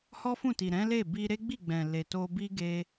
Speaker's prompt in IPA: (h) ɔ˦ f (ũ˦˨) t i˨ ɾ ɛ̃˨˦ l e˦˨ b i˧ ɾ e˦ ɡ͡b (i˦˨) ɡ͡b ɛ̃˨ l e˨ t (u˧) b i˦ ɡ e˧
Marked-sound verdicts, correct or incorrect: correct, correct, correct, incorrect: o˧

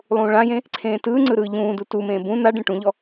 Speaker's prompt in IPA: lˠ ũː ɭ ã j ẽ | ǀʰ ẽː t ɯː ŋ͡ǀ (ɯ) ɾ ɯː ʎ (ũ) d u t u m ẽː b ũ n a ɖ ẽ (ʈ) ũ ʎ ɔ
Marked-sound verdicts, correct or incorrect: correct, incorrect: ũː, correct

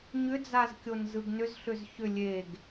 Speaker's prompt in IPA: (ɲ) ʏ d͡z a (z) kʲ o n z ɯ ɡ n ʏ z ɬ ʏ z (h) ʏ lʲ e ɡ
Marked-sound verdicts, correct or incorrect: correct, correct, incorrect: ç

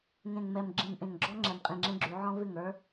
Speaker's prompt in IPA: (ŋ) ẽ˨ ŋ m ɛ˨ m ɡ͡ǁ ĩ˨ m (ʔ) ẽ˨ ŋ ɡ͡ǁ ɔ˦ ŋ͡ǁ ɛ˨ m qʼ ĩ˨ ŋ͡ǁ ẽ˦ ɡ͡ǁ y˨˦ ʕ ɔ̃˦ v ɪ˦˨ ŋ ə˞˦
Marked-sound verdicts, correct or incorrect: correct, correct

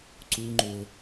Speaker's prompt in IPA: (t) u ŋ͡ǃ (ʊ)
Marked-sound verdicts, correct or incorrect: incorrect: ǀ, correct

